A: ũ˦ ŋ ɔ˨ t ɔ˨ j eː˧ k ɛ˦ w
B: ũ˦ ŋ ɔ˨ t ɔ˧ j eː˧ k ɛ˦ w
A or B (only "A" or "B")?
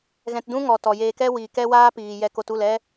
A